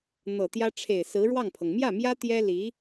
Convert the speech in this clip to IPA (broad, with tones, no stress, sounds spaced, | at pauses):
n̪ ɤ˨˩ t̪ j ä˥ ʈ͡ʂʰ e˨˩ ɪ̯ s ɹ̩˧˥ ɻ w ɑ˥˩ ŋ pʰ ɤ˩ ŋ m j ä˥˩ m j ä˥ t̪ j ɛ˥ l i˧˥